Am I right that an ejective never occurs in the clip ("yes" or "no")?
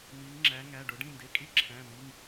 no